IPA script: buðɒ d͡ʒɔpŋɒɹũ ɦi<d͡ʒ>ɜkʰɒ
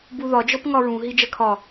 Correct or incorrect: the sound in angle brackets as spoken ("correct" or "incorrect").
correct